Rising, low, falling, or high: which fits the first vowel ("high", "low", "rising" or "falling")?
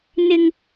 high